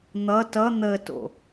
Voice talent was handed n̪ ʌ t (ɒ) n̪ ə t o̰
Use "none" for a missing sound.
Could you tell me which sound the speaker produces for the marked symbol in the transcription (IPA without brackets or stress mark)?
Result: ʌ